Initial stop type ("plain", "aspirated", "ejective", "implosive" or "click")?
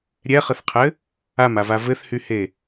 aspirated